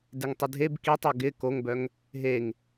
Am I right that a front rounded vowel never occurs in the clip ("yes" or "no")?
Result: no